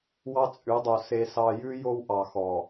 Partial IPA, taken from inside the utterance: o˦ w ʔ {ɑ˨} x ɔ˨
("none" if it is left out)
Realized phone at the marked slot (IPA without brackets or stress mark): ɑ˨